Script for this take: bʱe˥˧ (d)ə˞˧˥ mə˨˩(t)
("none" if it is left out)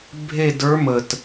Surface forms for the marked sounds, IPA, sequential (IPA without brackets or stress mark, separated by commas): d, t